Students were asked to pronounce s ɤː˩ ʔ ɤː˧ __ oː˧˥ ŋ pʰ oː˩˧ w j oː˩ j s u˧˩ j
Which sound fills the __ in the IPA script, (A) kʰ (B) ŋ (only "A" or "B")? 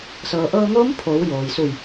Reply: B